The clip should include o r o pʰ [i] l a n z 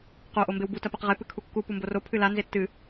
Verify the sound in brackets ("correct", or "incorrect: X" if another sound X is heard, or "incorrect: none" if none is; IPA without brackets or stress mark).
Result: incorrect: ɨ